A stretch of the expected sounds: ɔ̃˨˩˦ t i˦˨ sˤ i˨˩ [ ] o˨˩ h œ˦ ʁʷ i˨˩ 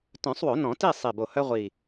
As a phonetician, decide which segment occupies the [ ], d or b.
b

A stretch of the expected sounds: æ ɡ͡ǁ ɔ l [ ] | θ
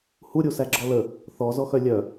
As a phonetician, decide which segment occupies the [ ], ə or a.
ə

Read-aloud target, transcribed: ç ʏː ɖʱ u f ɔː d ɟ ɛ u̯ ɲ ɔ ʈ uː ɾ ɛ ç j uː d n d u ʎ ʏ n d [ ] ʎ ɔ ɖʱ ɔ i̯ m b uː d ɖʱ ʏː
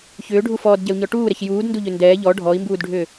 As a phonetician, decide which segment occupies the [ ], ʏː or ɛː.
ɛː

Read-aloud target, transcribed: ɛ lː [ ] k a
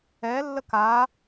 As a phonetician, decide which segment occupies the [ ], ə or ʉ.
ə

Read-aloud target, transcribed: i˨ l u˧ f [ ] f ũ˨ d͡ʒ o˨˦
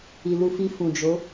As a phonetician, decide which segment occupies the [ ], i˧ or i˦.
i˧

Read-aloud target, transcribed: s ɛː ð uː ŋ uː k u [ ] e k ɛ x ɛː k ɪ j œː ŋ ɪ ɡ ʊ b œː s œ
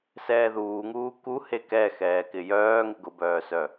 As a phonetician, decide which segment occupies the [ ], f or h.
h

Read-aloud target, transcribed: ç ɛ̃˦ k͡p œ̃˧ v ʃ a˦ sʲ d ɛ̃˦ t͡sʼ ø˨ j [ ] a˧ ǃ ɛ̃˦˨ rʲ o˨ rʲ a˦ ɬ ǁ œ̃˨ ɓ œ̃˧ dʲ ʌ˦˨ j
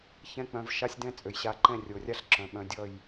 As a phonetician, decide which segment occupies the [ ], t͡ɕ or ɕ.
ɕ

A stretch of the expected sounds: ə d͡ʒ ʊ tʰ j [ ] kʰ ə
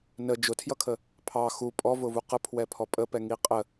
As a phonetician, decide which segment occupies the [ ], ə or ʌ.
ʌ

